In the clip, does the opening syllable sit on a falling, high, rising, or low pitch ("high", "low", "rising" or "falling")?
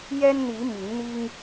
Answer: high